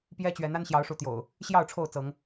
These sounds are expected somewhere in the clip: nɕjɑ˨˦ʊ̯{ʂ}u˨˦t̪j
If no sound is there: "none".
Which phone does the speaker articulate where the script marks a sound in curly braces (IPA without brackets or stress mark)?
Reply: ʂ